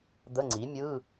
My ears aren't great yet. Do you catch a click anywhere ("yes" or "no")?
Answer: yes